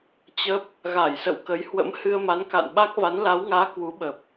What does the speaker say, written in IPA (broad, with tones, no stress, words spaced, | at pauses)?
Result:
t͡ɕə˦˥p̚ | ɣa˧˩jsə̰˧˨wkə˨˦jhwə̰˧˥m hɨ˧ə̯ma˨˦nka̰˧˨nɓa˦˥k̚ va˨˦nla˨˦wŋaː˨˦ kwu˨˦ɓə˨˩p̚